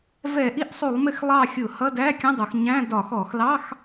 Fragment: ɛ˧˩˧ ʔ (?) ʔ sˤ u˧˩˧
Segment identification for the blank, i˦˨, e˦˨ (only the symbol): i˦˨